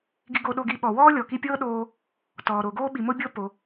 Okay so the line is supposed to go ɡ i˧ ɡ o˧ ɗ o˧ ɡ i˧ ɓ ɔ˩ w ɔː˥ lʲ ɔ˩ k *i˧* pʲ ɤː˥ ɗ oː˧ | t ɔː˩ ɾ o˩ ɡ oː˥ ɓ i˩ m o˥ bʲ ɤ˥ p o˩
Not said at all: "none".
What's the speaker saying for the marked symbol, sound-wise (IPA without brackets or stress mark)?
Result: i˧